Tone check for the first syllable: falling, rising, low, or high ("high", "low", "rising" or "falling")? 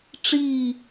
falling